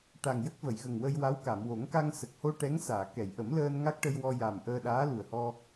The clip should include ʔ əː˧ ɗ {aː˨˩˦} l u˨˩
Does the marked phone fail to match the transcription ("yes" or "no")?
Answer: yes